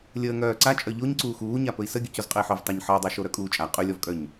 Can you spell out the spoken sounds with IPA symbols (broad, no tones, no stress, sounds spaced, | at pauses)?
lʲ əː ŋ œː ǀ a t͡ʃʼ œ ʎ o ɲ ǀ uː x uː ɲ a p ɵ i̯ s ə ɡʲ ɵ c o z qʼ ə i̯ ħ ɵ v tˤ a ɲ ħ ə u̯ dˤ œ ʃ o ɾ œ kʼ uː t͡ʃʼ a qʼ ɵ lʲ ɔ v kʼ œ ɲ